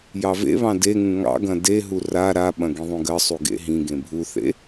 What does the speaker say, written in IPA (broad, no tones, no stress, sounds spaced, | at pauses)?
j ɑ v ḛ β ɑ̃ d e ŋ ũ ŋ ɑ̰ ɡ ɐ̃ d e ɦ u r a ɾ a ɓ ɐ̃ ɡ ĩ ðˤ ũ ɡ ɜ sˤ u ɡ ḛ ɦ ĩ ɡ ẽ bʱ u θ ḛ